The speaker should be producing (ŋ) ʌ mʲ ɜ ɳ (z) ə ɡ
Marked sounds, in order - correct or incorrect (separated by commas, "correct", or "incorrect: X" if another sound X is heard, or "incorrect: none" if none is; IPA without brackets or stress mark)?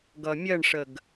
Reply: incorrect: ɡ, incorrect: ʂ